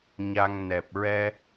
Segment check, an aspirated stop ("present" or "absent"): absent